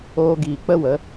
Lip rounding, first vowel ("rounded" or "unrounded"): rounded